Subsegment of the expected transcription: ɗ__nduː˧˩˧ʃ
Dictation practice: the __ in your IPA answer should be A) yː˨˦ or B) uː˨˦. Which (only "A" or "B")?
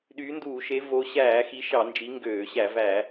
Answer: A